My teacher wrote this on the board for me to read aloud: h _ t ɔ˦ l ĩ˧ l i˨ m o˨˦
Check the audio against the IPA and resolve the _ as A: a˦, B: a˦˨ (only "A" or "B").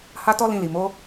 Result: A